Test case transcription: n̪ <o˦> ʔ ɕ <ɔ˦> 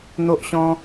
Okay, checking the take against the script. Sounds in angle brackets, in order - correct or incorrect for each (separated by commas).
correct, incorrect